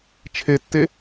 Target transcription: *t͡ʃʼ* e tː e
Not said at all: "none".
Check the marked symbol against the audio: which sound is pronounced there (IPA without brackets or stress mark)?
t͡ʃʰ